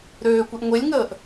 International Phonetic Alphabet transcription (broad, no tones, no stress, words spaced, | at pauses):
ɾøːkʷeʔ ŋʷelʲŋəːʔ